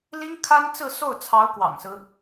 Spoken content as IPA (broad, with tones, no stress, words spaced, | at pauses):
li˥ŋkʰa˥nt͡sɹ̩˥˧ so˥˩ʊ̯t͡sʰɑ˧˥ʊ̯ kwɑ̰˨˩ŋsɹ̩˦